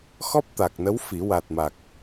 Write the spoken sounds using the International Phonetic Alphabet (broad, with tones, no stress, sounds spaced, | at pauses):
x ɔ˦˥ p̚ t̪ a˨˩ k̚ n ə˧˥ w f i˨˩˦ w a˨˩ t̚ m a˨˩ k̚